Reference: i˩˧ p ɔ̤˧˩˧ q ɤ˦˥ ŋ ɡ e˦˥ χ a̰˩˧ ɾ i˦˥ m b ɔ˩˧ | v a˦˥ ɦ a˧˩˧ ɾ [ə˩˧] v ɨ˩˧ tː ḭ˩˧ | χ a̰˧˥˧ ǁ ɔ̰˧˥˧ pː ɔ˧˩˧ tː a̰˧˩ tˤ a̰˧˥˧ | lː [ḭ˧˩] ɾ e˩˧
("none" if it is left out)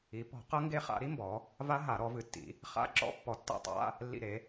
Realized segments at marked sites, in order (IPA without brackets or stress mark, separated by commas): ɔ˩˧, ḭ˧˩